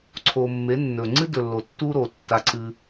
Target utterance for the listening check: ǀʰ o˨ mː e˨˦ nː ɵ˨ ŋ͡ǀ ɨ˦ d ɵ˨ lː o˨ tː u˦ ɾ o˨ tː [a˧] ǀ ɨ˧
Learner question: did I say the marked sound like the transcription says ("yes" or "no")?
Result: yes